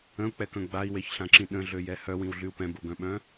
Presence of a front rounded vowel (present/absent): present